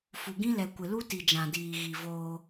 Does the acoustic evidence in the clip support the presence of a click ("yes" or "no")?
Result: no